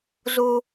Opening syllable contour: high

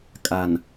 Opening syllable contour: low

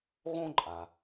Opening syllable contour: high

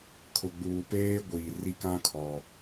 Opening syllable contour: low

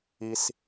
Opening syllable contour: low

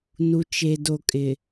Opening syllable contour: low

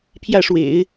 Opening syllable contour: falling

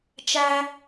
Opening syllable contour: high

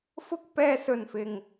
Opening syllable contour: high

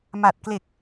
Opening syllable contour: low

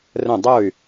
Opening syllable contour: falling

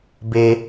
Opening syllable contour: low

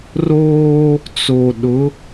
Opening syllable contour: high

